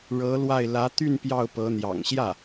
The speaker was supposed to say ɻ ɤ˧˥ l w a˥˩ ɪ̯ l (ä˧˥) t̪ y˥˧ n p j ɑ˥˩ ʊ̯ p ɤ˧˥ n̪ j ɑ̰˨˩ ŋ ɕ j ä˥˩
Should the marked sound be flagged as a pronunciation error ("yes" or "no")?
no